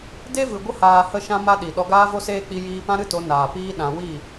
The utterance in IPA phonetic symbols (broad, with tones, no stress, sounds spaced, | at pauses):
d e˦ v ɨ˨ ɡʷ ə˦ h aː˨ h ə˧ ʃ ã˧ m a˦ ɗ i˨ ɗ ɔ˧ ɡ aː˦ v o˦ s eː˦ k͡p i˧ j iː˧ p ã˦ ɾ ɨ˦ t o˨˦ n aː˨ p iː˦ ɗ ã˧ w i˦˨